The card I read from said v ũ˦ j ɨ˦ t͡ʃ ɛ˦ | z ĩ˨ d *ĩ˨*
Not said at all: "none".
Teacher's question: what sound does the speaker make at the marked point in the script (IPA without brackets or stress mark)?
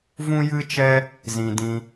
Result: ĩ˧